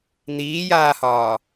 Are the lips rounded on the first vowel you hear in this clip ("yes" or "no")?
no